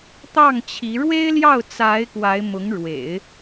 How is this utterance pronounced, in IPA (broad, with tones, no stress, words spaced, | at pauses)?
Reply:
t̪ɑ˥˩ŋt͡ɕʰi˧˥ ɻwe˥ɪ̯ljɑ˥˩ʊ̯ t͡sa˧˥ɪ̯ kwa˧˥ɪ̯mʊ˧˥ŋɻwḛ˨˩˦ɪ̯